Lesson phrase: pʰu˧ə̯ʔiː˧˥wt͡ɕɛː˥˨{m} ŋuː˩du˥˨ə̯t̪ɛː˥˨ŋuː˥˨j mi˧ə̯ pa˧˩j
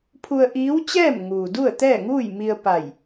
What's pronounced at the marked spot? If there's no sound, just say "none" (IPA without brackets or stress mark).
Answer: m